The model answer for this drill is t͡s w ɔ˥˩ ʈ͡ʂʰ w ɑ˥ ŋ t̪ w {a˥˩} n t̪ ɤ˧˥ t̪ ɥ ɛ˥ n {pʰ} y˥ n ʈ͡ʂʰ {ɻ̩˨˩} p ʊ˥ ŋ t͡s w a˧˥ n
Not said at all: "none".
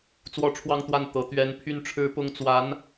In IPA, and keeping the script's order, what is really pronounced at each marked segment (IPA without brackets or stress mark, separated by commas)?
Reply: a˥˩, pʰ, ɻ̩˥